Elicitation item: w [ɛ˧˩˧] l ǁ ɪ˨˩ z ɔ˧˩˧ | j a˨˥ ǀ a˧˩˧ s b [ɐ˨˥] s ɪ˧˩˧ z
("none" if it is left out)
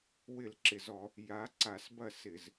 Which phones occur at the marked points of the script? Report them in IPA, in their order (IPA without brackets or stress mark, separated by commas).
ɪ˧˩˧, ɐ˥˩